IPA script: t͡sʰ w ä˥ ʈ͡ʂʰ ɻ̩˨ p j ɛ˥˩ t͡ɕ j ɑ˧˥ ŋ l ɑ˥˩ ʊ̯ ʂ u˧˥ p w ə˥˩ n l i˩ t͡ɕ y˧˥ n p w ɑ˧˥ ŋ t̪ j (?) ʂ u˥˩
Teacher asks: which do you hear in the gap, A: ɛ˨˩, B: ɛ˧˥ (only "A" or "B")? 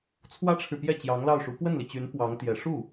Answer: A